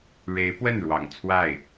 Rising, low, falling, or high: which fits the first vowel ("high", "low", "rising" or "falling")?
rising